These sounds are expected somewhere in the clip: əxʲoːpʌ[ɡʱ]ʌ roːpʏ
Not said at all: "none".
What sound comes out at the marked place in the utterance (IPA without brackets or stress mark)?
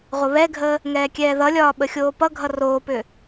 ɡʱ